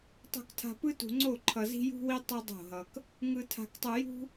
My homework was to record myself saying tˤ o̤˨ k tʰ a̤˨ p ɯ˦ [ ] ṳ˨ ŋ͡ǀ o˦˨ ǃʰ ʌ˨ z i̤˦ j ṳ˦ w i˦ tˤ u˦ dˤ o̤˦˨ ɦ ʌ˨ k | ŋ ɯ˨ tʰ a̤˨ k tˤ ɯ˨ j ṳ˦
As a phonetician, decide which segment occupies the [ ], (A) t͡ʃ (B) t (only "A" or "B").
B